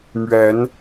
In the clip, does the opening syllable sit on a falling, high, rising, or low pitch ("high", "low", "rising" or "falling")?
rising